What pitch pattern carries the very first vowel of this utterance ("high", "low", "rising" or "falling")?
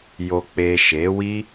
low